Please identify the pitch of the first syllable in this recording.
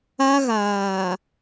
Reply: high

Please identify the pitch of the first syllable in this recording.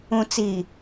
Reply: low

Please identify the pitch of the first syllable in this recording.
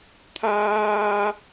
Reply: high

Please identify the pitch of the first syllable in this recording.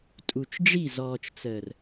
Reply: low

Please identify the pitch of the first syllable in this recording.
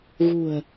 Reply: low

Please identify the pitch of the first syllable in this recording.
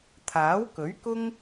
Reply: rising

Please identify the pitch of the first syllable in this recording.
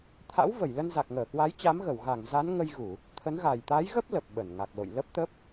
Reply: rising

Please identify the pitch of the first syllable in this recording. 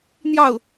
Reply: falling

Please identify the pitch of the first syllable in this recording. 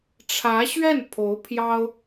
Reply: rising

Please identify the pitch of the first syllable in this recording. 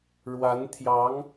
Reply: rising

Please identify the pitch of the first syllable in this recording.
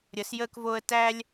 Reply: rising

